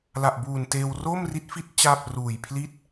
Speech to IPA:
l a˨˩ ʔ b uː˨˩ n t eː˧ w r oː˥˩ m r i˦˥ t̚ f i˦˥ t̚ t͡ɕ aː˥˩ p̚ r uː˨˩ j pʰ l i˥˩ t̚

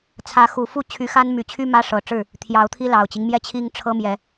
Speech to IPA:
t͡sʰ ä˨˦ x u˨˩ f u˥˨ t͡ɕʰ y˨˦ x a˦ n m y˨˩ t͡ɕʰ y˦ m ä˦ ʂ ɤ˨˩ ʈ͡ʂ ɻ̩˥˨ | t̪ʰ j ɑ˨˦ ʊ̯ t̪ʰ i˦ l ɑ˨˩ ʊ̯ t͡ɕ i˦ ŋ m j ɛ˥˨ t͡ɕʰ i˦ ŋ ʈ͡ʂʰ ɤ˦ m j ɛ˨˦

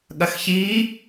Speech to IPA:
ɠ ɐ x ç i

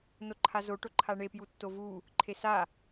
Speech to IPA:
n o ǃʰ a z o ʈ o ǃʰ a ɳ e p j u tː o v u | ǃʰ e s a

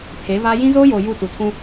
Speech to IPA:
pʰ e˨˦ v aː˦ j ĩ˦ z oː˦ j oː˨ j u˦˨ t u˨ tʰ ũ˦

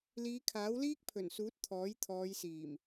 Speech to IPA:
l iː˨˧ kʰ aː˨˥ w l iː˥ k̚ pʰ ɵ˨˩ n s uː˨˥ t̚ t̪ʰ ɔː˨˥ j t̪ʰ ɔː˨˧ j s iː˨˩ m

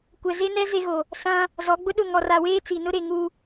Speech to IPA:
kʷ ɛ˨ z e˦ n ɛ˦ z e˦ ɣ o˨ | s ã˦ | z ɔ˨˦ ɡ͡b ʊ˦ ɗ ʊ˦˨ ŋ ɔ˨ r a˨ w eː˦ t͡s i˨ n ʊ˦ ɾ e˨ ŋ u˨

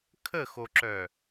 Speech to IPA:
kʰ ə x o ǁ œ

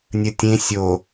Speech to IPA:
nʲ ə tʲ ẽ sʲ o

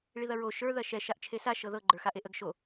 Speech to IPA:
ɭ i ð ɐ ɹ o ʃ ə˞ ð ɐ ʃ ɛ ʃ a ʔ t͡ʃʰ e s a ʃ ɤ ð ɤ ɡ͡ǃ ə˞ x a ʔ e ʔ ə ɡ ʃ o

